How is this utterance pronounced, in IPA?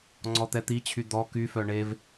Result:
ŋ͡ǀ ɔ t̪ ɛ t̪ i t͡ɕʰ y d̪ ɔ k y f œ ɳ e v

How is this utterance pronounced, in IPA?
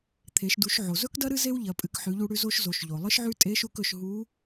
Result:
t̪ʰ e˩˧ ʃ d u˩˧ ʃ ʕ o˩ z ɵ˥ k d ɐ˥ ɾ ɨ˥ z e˥ w ʎ ɐ˩˧ pʼ ɨ˩˧ k ħ ʉ˩˧ ʎ u˧ ɽ ʉ˧ z o˧ ʃ z o˩˧ ʃ ʎ o˩ lˠ ɨ˥ ʃ ʕ ʉ˥ tʼ e˧˥ ʃ u˧ k ɵ˩˧ ʃ ɦ u˧˥

